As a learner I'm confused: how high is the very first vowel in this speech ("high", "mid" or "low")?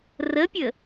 mid